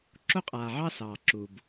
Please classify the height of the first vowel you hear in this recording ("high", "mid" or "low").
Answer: mid